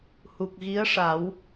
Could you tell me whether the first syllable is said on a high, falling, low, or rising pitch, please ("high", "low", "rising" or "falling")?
low